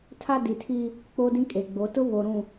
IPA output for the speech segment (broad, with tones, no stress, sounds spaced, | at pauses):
tʰ a˦ d i˨ tʰ i˦ | k͡p oː˦ d ĩ˦ kʼ e˨ ɡ͡b o˨˦ t ʊ˦ β o˨ ɾ ũ˨